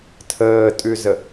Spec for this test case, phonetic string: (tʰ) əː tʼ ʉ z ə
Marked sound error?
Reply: no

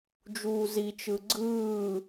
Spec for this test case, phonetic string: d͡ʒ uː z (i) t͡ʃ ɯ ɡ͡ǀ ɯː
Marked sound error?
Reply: no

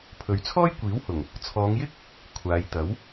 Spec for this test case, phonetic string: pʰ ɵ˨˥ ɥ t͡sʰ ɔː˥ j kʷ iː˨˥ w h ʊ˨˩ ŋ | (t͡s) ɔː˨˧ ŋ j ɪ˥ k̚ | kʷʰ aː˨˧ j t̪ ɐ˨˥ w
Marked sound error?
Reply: yes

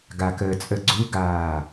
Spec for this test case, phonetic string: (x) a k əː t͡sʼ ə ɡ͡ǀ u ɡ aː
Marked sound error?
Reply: yes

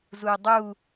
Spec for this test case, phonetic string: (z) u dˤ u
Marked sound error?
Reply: no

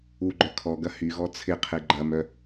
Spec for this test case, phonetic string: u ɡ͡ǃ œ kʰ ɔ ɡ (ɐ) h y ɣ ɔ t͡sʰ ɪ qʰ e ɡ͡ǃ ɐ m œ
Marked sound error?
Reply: no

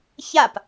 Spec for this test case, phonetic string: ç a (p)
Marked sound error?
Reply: no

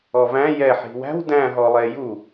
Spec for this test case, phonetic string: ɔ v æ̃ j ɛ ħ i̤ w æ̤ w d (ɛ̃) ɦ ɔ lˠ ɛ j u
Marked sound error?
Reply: yes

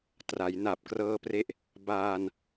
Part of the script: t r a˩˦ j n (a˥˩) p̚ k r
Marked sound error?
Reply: yes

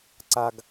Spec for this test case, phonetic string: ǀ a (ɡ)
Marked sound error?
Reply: no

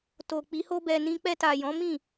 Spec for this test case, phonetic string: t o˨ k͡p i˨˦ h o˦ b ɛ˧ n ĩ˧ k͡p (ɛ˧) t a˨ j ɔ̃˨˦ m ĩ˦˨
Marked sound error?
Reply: no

